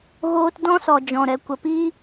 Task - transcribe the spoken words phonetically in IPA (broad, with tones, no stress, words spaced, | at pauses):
ɣoː˧t dɔ̃˦sɔ˨ d͡ʒɔ̃˨ɾɛ˨ kʷə˨piː˦